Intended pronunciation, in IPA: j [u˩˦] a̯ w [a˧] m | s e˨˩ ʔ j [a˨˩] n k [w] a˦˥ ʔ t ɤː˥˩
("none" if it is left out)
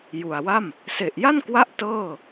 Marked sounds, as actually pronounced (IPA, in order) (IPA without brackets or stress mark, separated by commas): u˨˩, a˥˩, a˥˩, w